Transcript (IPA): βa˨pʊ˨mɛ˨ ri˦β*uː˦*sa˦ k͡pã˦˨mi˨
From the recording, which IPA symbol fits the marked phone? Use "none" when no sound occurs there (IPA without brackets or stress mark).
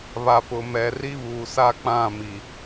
uː˨